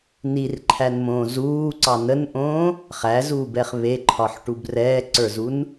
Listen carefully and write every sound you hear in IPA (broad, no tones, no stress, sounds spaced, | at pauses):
n i r ǃʰ æ n m õː z uː ǀ ɑ n ə n ʔ õː | χ æ z uː b ɛ χ β e ǃʰ ɒ ħ ʈ u b r ɛː ǀ ə˞ z u n